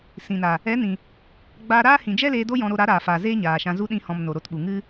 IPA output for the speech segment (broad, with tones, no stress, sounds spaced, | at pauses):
s ĩ˨ n a˨ | ɛ˨˦ n ĩ˨ | ɡ͡b aː˧ ɾ aː˦ h ĩ˨ d͡ʒ ɛ˦ l eː˧ d o˦ j ɔ̃˧ ɾ o˧ ɾ a˨˦ ɾ aː˨ f aː˨ z eː˦ ɲ aː˨ ʃ ã˧ z u˦ ɗ ĩ˦ h ɔ̃˧ m n o˨ ɾ o˧ t ɓ u˨ ŋ ɨ˦